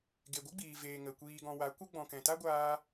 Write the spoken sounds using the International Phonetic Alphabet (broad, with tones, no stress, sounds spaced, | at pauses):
ɡ e˨ ɡʷ ɨ˦ ɡ͡b iː˨ v eː˨ ŋ ə˨ kʷ iː˨ ɡ ɔ̃˨ w a˨˦ kʷ ə˦ ɡ͡b ɔ̃˨ k ɛ̃˨ t a˦ ɡʷ aː˧